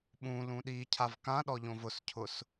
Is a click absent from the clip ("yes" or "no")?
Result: yes